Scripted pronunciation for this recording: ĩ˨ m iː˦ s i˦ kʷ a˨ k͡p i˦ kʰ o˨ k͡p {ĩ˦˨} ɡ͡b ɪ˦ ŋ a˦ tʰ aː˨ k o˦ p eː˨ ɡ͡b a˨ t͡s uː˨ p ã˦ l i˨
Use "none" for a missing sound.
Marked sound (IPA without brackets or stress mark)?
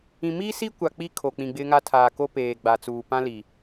ĩ˨